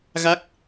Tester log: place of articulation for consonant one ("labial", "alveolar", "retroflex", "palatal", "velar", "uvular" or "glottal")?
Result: velar